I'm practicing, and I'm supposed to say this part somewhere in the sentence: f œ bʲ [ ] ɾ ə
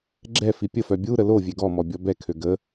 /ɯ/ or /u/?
u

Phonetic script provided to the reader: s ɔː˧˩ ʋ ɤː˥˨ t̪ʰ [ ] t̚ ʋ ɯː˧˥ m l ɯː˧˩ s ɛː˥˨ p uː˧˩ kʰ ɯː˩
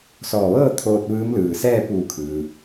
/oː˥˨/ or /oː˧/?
oː˧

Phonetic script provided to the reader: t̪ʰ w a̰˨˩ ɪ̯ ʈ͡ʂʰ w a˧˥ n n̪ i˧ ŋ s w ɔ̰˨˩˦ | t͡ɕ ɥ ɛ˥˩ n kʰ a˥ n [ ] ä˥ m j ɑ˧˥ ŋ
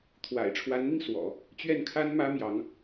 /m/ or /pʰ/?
m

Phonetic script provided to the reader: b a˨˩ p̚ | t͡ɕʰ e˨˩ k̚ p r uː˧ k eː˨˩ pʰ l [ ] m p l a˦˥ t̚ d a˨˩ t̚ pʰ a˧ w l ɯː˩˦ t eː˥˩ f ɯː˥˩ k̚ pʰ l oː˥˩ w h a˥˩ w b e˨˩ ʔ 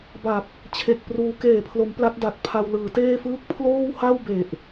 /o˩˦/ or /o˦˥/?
o˩˦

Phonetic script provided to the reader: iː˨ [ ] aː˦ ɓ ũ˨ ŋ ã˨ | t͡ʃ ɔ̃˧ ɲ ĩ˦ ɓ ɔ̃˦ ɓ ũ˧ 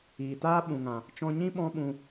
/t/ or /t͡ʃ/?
t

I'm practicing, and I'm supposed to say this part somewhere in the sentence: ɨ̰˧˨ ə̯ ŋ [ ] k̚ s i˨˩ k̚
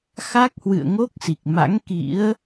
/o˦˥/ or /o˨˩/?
o˦˥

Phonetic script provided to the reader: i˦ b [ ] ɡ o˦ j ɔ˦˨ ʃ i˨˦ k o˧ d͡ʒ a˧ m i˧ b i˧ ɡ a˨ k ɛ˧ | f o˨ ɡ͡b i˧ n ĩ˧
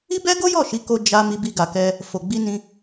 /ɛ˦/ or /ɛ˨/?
ɛ˦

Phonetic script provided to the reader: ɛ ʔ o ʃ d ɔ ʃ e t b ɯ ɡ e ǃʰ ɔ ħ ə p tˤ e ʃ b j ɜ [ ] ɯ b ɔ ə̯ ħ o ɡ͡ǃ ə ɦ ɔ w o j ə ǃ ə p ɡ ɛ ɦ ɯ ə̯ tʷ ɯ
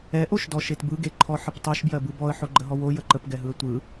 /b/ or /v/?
b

